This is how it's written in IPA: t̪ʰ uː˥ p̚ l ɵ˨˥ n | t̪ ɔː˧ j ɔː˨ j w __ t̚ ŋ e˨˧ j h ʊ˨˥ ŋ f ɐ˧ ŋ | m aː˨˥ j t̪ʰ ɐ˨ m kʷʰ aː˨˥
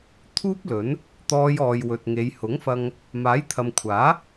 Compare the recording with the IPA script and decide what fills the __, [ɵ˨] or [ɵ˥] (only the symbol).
ɵ˨